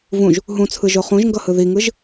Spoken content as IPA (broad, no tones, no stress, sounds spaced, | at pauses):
v ũ ʒ | ɦ ũ t͡sʰ ɯ ʒ o χ ũ ʒ ŋ ɡ ʌ h ɯ ð i ŋ ɯ ʒ